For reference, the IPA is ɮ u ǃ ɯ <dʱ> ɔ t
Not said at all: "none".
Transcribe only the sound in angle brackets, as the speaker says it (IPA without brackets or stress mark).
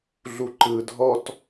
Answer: dʱ